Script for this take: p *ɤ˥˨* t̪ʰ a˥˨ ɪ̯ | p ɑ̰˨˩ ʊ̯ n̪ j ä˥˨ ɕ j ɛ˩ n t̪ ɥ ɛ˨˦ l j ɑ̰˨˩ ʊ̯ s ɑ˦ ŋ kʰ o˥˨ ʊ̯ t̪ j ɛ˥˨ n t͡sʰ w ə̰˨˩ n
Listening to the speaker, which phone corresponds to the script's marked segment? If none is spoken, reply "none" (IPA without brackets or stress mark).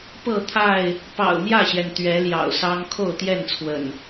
ɤ˥˨